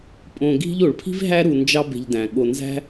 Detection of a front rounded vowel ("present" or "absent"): absent